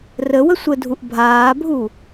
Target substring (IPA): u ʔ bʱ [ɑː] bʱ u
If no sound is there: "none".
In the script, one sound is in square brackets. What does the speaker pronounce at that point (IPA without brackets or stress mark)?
aː